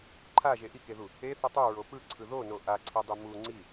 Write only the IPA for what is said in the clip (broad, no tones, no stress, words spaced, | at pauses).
ǃʰaʒe ʔikeðu | eθɯ tˤuɹo pɯǀʰɯ ðono ʔaǀʰidˤi mu ŋ͡ǀi